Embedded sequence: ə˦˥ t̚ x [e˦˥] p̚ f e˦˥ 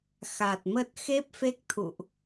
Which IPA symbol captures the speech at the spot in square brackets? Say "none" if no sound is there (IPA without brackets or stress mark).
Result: e˦˥